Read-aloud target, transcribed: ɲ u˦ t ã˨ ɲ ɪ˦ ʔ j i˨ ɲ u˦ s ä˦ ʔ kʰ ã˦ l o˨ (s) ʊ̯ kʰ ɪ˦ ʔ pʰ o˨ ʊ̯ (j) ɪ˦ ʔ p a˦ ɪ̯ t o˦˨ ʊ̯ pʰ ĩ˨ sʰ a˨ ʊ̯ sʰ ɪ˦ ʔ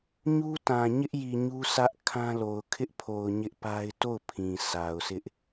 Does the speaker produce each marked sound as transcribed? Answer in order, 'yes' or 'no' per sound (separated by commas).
no, no